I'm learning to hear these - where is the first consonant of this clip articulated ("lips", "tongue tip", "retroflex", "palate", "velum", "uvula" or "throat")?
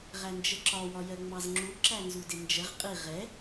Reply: uvula